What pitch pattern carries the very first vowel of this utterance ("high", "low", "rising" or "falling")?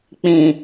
low